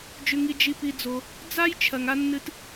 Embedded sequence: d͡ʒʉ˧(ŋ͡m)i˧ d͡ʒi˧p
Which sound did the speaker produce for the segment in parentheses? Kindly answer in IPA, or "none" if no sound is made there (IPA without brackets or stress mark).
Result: ŋ